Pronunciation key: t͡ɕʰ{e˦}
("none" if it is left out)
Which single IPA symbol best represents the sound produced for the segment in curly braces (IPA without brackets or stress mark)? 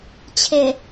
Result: e˨˩